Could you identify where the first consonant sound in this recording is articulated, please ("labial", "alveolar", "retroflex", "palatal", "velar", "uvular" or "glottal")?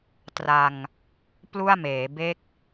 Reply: alveolar